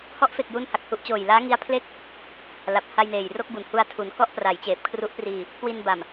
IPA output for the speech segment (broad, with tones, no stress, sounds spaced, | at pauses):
h ɔ˦˥ ʔ f e˨˩ k̚ j u˧ n h a˨˩ k̚ h u˦˥ ʔ t͡ɕ oː˨˩ j l aː˦˥ ŋ i˦˥ a̯ pʰ l e˥˩ k̚ | l a˨˩ p̚ h a˧ j n eː˨˩ j r o˥˩ k̚ b u˨˩ n h u˧ a̯ tʰ u˩˦ n k ɔ˥˩ ʔ p r a˩˦ j t͡ɕ eː˨˩ p̚ kʰ r u˦˥ ʔ p r iː˧ | k w i˧ n b a˨˩ m